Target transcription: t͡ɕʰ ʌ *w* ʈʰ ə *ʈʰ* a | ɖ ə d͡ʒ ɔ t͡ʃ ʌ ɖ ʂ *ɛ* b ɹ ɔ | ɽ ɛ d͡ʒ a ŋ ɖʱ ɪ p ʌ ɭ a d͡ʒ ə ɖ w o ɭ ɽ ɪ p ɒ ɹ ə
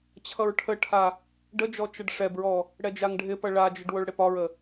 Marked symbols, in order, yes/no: no, yes, yes

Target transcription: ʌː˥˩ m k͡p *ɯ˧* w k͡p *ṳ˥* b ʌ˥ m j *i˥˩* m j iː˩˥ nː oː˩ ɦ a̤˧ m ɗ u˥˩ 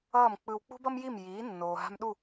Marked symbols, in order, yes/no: yes, yes, yes

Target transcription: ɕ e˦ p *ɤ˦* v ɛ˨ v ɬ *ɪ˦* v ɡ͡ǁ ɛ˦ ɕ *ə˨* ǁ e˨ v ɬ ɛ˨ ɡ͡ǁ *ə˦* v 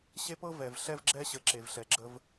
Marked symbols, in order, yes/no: yes, no, yes, yes

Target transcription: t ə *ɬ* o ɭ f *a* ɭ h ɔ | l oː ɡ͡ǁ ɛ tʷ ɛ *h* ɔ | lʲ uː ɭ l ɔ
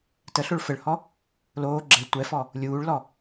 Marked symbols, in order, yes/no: yes, no, no

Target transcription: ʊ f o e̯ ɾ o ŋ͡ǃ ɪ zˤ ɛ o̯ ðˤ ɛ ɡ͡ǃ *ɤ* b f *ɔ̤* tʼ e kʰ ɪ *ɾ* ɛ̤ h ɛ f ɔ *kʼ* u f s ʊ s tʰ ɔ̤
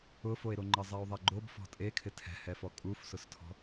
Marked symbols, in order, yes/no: no, yes, no, yes

